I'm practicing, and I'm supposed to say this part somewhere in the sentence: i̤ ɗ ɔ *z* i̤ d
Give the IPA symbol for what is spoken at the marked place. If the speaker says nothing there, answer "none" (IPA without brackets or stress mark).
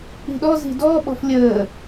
z